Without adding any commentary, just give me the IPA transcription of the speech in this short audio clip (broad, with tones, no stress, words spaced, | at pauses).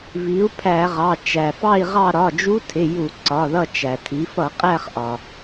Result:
vi˩˧u̯ pʰæ˧˩˧ʁɑ˩˧˩ t͡ʃæ˩fɑ˦˨i̯ʁɑ˦˨ ɾɒ˩˧˩d͡ʒu˧˥tʰɪ˩˧˩ ju˧˩˧ǀɒ˩˧˩ðʌ˦˨t͡ʃæ˩ tʰi˩˧fʌ˧˩˧qʼæ˦˨χ ʔɒ˩